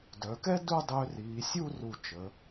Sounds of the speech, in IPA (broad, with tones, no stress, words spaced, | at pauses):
dœ˩˧kɛ˥du˥˧ dˤø˧riː˩˧sʲu˥˧ ru˧˩t͡ʃə˩˧